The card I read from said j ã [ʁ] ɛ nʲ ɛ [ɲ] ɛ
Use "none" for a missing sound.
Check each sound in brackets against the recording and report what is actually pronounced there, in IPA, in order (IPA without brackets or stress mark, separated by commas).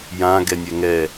ɡ, ŋ